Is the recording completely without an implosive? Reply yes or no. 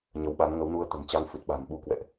no